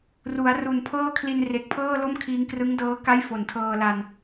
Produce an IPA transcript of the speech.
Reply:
r u˩˦ a̯ r u˨˩ n pʰ ɤː˥˩ kʰ l i˧ n r e˨˩ k̚ pʰ ɤː˥˩ l o˥˩ m kʰ iː˧ ŋ k r ɯ˦˥ ŋ d ɤː˦˥ k a˥˩ j f o˨˩ n tʰ ɤː˧ l a˧ n

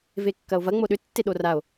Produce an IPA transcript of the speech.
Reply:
v e kː ɐ o̯ v ɐ ŋ͡m o ɗ ʏ tː e ɗ o r a o̯

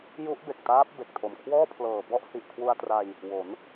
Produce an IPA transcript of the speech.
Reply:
j u˦˥ ʔ b e˨˩ k̚ t aː˦˥ p̚ b e˨˩ k̚ tʰ o˨˩ m kʰ w ɔː˥˩ pʰ l ɤː˨˩ b ɔ˥˩ ʔ h i˨˩ ʔ kʰ w u˧ a̯ t r a˧ j | w o˩˦ n

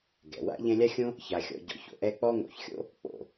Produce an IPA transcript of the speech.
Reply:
ɡ ɛ̰˩ w a̰˥ ʎ ɛ̃˦ lʲ a˥ xʲ õ˥ | ç a˨ xʲ ɔ̰˨ ɟ ɔ̰˨ ç o̰˩ ʔ ɛ˦ k͡p ɔ˥ ŋ o̰˨ ç xʲ o̰˥ | k͡p o̰˩

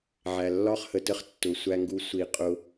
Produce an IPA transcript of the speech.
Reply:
ʕ æ˨ lː ɒ˦ χ h ə˨ t ə˦ χ tː ʊ˨ sʷ æ˧ ŋ ɡ u˧ sʷ i˧ qʼ ʊ˧

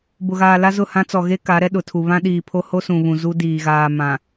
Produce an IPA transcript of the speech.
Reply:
b ʊ˨ ɣ aː˨ l a˦ z ʊ˦˨ h ã˦ t͡s ɔ˨ ɣ e˦ k a˨˦ ɾ ɛ˦ ɗ ʊ˨ tʰ u˨ β ã˦ ɗ iː˨ pʰ o˦ h o˦ s ũ˨ β ũ˨ z u˦ d iː˨ ɣ aː˨ m ã˨

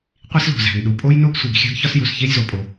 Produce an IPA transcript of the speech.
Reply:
qʷ i˥ s l o̤˩ z æ̤˩ n ɗ u˩ pʼ o˥ j n o˥ ɡ sʷ i˩ ɡ xʲ æ̤˥ ɡ ç ɒ˥ s j u˩ s ç e˥ j z o˩ pʼ o˩

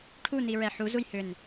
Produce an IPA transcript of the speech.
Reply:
ʈʰ u n i ɹ ɛ ħ u z u j h ʏ n

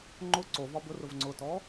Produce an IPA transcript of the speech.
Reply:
ŋ͡ǃ ʊ ǀ o v ɒ b ʊ r ʊ v ŋ͡ǀ ʊ t ɔ

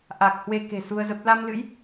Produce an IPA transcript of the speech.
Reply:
ʔ a˨˩ k̚ h w e˧ k e̤˨˩ s u˧ ə̯ z ə˦˥ p̚ l a˧ m l ɨ̰˧˥ j

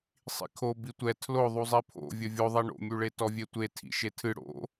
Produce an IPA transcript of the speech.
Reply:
sˤ ḭ kʰ o b i tʷ ɛ tʰ l o ðˤ u zˤ i pʰ o̰ vʲ ɘ vʲ o ðˤ i ɳ o̰ mʲ u ɭ e t ɔ vʲ e tʷ e tʰ ḭ ʃ e tʰ ɨ ɽ o̰

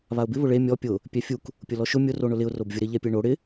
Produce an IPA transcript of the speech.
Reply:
β a ʊ̯ b ɪ β ʊ ɭ e mʲ ɔ pʲ ʊ | pʲ ɛ fʲ u k | pʲ ʊ l ɔ ʃ ʊ mʲ ʊ r o ɳ ʊ l ɪ ʊ̯ r o b vʲ ʊ ɾ ɪ ʎ ɛ pʲ e ɳ o ɽ ɪ

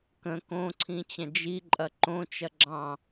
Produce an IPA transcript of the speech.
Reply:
k ə̃ k õ ǀʰ ĩ t͡ɕ ɐ̃ d͡ʒ i ǃʼ ɐ ǃ õ t͡ʃ ɐ ɡ͡ǁ ɑ̃

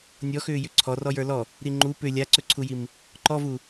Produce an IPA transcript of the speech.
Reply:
nʲ ɔ x ʏː j ʏ ǀʰ ɔ r ɔ j ə˞ l ɔ | ɾ i ŋ͡ǃ u p ʏ lʲ a ǀ ɵ ǀʰ u j i m | ǃ ɔ v u

